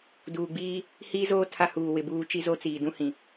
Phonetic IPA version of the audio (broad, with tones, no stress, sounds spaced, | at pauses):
d uː˨ ɡ͡b iː˦ | h iː˦ z oː˦ tʰ a˦ h uː˨ w ɪ˨ b uː˦ t͡ʃ i˦ z o˦ t͡s iː˨ d ũ˦ h ĩ˨